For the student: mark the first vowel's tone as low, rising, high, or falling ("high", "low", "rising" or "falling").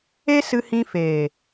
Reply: high